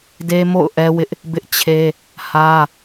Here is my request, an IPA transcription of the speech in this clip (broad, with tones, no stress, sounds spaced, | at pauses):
d e˦ m o̰˦˨ ʊ̯ ʔ ɛ˦ w ɪ˦ ʔ | b ɪ˦ ʔ t͡ɕʰ e˦ | h ä˦